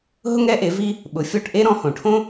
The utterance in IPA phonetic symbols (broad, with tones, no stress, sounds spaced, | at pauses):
ɦ ʊ˥ ŋ ɾ ɛ˥ ʔ e˩˥ v i˧ | ɓ ʊ˩˥ fʲ ɔ˥˩ ʈ ʔ e˥ ɾ ɔ̃˩˥ h õ˩ ʈʰ õ˥